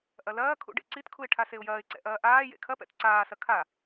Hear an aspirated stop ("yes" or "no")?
yes